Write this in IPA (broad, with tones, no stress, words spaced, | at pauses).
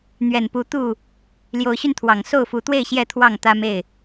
n̪ɥɛ˨˩npu˨˦ t̪u˥˨ | ljo˨˦ʊ̯ɕy˧nt̪ʰwɑ˨˩ŋ so˥˨ʊ̯fu˨˦t̪we˥˨ɪ̯ ɕjɛ˥˨t̪ʰwɑ˥˨ŋ t̪ä˦ me˥˨ɪ̯